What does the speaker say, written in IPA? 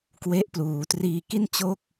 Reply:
k w e˦˥ ʔ p l uː˩˦ t r iː˨˩ k i˥˩ n t͡ɕ o˥˩ k̚

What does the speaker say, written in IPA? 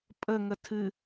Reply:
pʼ ə ŋ ə tʰ ɨ

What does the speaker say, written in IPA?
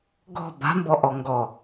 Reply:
ɡ ɔ̤ b a̤ m b ɔ ʔ ɔ ŋ ɡ ɔ

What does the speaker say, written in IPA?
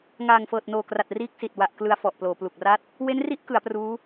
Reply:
ŋ aː˨˩ ŋ f ɤː˨˩ t̚ n oː˨˩ k r a˨˩ t̚ r iː˦˥ k̚ s i˨˩ t̚ w a˨˩ ʔ k l ɯ˧ a̯ f ɔ˨˩ ʔ p l oː˩˦ p l u˨˩ k̚ r a˥˩ t̚ | w e˦˥ n r i˦˥ ʔ k ɯ˩˦ a̯ p r uː˦˥

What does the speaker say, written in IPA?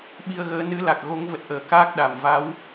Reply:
ɓ i˧ ə̯ ɣ əː˨˦ n ɨ˨˦ l a˨˩ k̚ ɣ o˨˦ ŋ v ə˨˩ t̚ ʔ əː˨˩ k aː˦˥ k̚ ɗ a˨˩ m v a˨˦ w

